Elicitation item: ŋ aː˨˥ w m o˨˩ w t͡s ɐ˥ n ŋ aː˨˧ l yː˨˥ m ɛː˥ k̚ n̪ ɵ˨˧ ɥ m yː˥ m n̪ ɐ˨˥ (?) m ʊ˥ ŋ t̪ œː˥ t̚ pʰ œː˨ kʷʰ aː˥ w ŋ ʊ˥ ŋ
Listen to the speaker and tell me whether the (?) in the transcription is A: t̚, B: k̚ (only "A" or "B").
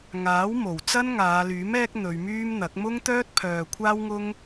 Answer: B